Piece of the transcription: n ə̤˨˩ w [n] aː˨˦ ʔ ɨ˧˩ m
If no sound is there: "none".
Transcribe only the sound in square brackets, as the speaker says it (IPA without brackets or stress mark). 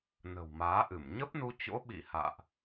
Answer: m